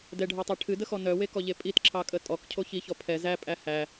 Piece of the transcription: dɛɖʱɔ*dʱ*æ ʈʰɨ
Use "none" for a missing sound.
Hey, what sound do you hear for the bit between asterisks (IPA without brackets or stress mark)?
tˤ